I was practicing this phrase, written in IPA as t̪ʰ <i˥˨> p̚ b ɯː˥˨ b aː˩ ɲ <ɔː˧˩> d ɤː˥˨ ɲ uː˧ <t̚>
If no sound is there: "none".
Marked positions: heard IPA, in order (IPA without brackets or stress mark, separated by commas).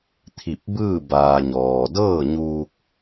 i˧˩, ɔː˩, k̚